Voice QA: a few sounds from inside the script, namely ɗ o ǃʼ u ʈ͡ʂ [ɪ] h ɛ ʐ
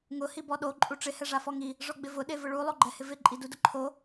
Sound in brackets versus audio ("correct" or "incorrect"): correct